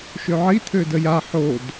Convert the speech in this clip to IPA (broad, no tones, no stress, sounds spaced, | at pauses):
ʃ ø ʕ i t̪ʰ ø d ə j a ħ o d